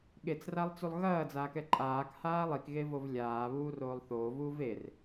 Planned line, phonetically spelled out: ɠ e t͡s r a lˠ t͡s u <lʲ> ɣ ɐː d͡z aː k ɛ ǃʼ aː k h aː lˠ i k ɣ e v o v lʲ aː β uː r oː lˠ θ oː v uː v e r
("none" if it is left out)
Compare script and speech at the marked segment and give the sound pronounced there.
lˠ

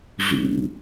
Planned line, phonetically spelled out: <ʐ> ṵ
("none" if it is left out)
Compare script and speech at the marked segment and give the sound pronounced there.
ʐ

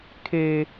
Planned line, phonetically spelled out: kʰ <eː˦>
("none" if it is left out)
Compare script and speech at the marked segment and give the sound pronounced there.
eː˦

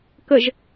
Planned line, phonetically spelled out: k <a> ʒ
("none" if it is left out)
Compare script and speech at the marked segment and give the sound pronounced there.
ə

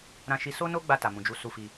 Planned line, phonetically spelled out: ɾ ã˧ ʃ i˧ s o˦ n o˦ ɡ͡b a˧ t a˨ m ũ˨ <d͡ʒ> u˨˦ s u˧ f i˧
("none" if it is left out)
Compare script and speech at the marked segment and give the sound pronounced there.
d͡ʒ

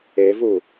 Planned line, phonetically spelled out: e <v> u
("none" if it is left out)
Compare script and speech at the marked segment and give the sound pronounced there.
v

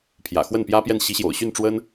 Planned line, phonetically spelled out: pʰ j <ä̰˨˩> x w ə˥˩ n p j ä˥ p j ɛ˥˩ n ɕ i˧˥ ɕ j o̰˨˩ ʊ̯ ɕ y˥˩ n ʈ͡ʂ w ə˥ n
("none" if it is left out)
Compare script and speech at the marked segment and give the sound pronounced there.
ä̰˨˩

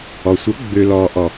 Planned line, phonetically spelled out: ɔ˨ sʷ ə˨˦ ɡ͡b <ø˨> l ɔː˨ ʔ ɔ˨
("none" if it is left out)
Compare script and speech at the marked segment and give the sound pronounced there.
ø˨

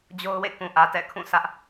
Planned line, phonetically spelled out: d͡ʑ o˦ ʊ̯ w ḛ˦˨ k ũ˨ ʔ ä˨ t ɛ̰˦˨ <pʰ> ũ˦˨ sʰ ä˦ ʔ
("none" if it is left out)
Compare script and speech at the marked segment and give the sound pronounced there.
kʰ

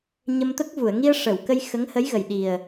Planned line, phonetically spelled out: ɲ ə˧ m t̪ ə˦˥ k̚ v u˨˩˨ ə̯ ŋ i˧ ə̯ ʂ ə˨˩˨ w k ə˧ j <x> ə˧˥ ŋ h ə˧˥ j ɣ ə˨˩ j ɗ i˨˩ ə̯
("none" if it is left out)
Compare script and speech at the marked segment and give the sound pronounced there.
x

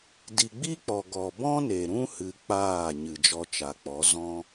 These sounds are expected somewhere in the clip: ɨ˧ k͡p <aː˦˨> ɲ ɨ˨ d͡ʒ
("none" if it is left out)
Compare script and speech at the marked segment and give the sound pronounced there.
aː˦˨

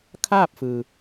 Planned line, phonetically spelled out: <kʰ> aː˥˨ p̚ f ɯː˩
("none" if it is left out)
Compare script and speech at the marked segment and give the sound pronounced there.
kʰ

